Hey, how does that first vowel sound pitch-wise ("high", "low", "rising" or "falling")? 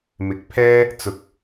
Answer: rising